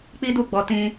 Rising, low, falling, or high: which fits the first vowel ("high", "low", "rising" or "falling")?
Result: high